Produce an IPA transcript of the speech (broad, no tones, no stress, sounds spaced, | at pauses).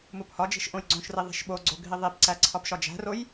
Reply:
m u p h ɒ d͡ʒ i̤ ʃ ʔ õ j ɡ͡ǀ õ ʃ r i ðˤ i̤ ʃ ɓ o ɡ͡ǀ o ɡʱ i ðˤ i p ǀ æ ǀʰ ɒ p ʃ ɒ d͡ʒ æ̤ r o j